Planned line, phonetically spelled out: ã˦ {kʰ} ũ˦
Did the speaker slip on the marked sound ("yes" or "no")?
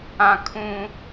no